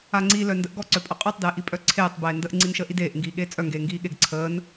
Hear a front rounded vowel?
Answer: yes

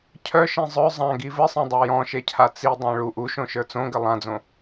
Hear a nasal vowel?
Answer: yes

